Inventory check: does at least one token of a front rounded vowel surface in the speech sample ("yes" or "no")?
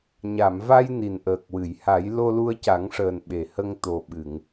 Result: no